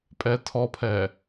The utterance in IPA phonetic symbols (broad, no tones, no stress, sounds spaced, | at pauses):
pʼ ɛ tʰ ɔ pʰ ɛ